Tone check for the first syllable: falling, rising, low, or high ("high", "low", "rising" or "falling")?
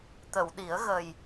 low